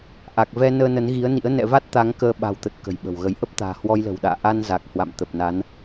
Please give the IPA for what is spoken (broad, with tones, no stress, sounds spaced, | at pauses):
ʔ a˨˩ k̚ v ɛ˧ n əː˧ n ə˨˦ n ɣ i˨˦ ə̯ n ḭ˧˥ ə̯ n ɛ̰˧˨ v a˦˥ t̚ t̪ a˨˦ ŋ k əː˧ ɓ a̤˨˩ w t̪ ə˨˩ t̚ k ə̤˨˩ j ɓ ə̤˨˩ w ɣ ə˨˦ j ʔ ə˦˥ p̚ t̪ a̤ː˨˩ h w ɔ˧ j l ə̤˨˩ w ɗ a̰ː˧˨ ʔ a˧ n z a˨˩ k̚ h w a̰˧˨ m t̪ ə˨˩ p̚ n a˨˦ n